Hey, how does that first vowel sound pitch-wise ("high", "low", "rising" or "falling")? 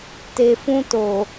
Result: low